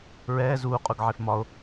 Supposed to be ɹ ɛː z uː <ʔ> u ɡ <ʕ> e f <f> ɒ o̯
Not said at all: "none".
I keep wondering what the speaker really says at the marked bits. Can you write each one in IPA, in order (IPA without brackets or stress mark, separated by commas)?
qʼ, ʕ, m